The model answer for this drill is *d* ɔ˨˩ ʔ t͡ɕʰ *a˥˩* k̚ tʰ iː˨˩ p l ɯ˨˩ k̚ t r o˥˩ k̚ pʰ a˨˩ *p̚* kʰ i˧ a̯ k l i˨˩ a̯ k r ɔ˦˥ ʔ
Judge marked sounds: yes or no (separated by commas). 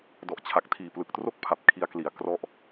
yes, no, yes